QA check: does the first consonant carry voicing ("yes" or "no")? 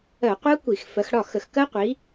no